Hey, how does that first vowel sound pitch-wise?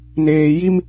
low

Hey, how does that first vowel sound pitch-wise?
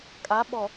rising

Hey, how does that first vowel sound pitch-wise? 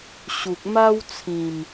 low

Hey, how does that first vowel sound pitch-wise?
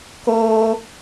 high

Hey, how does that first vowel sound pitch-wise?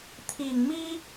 low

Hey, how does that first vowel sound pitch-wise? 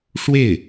falling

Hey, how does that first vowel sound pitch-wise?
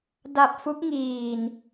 low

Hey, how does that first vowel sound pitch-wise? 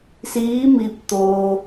rising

